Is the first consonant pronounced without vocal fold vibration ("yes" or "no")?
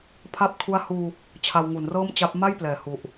yes